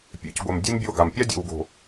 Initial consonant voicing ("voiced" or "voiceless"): voiceless